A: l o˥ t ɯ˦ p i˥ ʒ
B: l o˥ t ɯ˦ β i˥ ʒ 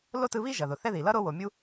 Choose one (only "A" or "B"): B